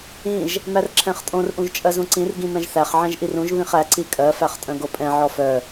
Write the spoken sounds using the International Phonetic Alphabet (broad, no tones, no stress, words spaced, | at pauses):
ĩʒ | mærǁʰɛ̃χtʼõr ʔũʒt͡ʃʼɜzũǀĩr ɡĩmɛ̃ʒθæχ ʕɛ̃ʒʔirũʒ βĩχæ ǀikʼɜ fæχtʼœ̃ɡopʼɛ̃ ʕɔfœ